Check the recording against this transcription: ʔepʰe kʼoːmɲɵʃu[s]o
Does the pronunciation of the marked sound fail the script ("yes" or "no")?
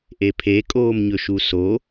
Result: no